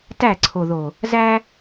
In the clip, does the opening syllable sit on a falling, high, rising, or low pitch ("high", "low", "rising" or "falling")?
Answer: falling